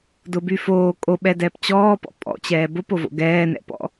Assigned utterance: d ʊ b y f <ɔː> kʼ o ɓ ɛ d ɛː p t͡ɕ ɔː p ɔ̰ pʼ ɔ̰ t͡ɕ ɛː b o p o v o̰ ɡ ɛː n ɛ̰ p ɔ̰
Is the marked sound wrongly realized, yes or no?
yes